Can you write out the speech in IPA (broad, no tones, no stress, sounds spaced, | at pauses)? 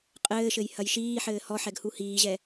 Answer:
qʼ ɘː ʃ ɘ j h ɐ j ʃ iː ħ ɘː h ɔ ħ ɛ ɡ h u h iː ʑ ɛ